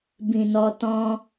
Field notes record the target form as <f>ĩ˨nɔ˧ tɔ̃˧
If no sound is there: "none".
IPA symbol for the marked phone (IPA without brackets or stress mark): b